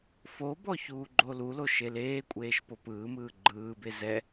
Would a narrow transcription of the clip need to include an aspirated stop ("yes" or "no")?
no